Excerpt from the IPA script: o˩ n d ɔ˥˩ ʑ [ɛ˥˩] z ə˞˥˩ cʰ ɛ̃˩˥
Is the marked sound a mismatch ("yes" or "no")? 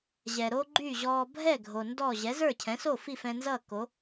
yes